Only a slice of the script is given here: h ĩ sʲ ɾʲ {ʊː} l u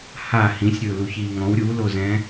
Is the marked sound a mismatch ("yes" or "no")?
no